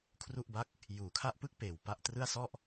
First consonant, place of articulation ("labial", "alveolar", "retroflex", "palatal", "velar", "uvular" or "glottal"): velar